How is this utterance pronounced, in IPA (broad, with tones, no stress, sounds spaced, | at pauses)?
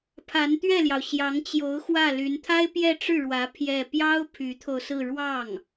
pʰ a˧˥ n t̪ ɥ ɛ˥˩ l j ɑ˩ ʊ̯ ɕ j ɑ˧˥ ŋ t͡ɕ j o˧˥ ʊ̯ x w ä˥˩ l y˧˥ n t̪ʰ a˥ ɪ̯ p j ɛ˥˧ ʈ͡ʂ ɻ̩˥˩ ɻ w ä˧˥ pʰ j ɛ˥˩ p j ɑ˥ ʊ̯ pʰ y˧˥ t̪ʰ o˧ ʊ̯ s ɹ̩˥˧ ɻ w ɑ˥˩ ŋ